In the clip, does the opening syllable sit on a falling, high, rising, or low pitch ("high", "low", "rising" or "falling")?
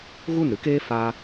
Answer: falling